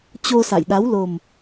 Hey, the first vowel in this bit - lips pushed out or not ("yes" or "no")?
yes